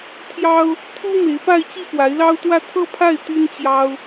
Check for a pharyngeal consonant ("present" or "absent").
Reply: absent